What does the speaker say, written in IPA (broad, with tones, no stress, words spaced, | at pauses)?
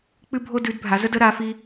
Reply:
k͡pɨ˦bʱo˦ dʉ˨˦dbʱa˨˦zə˦də˨˦ ɾa˨˦fi˦